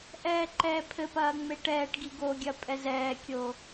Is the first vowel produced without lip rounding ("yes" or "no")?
yes